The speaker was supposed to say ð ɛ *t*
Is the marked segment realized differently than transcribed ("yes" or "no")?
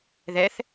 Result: yes